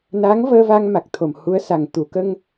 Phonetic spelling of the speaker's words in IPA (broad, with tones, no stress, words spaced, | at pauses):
na˧˥ŋvəː˧ va˧ŋma˨˩k̚ t̪ʰo˨˩mhu˧˥ə̯sa˨˩ŋ t̪u˨˩˨kə˧ŋ